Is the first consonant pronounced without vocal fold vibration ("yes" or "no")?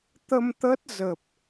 yes